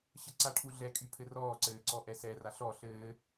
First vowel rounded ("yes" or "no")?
no